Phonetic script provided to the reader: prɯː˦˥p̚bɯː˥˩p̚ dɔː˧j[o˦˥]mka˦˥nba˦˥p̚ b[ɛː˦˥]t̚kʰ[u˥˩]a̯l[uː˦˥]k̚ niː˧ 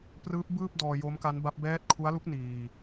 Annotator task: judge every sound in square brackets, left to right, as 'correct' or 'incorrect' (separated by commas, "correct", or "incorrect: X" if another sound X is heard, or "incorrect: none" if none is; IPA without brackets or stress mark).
correct, correct, incorrect: u˦˥, incorrect: u˦˥